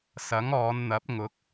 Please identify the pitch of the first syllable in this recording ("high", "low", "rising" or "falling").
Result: rising